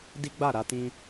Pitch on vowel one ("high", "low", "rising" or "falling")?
high